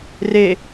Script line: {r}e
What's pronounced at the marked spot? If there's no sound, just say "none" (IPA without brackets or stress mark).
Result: r